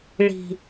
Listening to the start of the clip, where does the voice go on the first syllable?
low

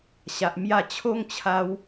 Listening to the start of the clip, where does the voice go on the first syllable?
low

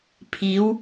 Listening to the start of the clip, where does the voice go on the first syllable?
rising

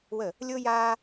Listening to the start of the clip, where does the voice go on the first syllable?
falling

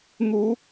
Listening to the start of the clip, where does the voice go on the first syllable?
rising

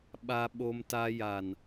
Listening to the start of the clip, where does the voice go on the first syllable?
high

